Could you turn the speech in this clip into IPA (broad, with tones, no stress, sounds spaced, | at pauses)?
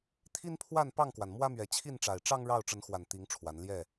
t̪ʰ i˦ n pʰ w a˥˨ n p ɑ˥˨ ŋ k w a˩ n m w ä˦ m ɥ ɛ˨˦ t͡ɕʰ i˥˨ n ʈ͡ʂ a˨˩ ɪ̯ ʈ͡ʂ ɑ˦ ŋ ɻ ɑ˥˨ ʊ̯ ʈ͡ʂ ə˨˦ n x w a˨˩ n t̪ i˨˦ ŋ ʈ͡ʂʰ w a˨˦ n l j ɛ˥˨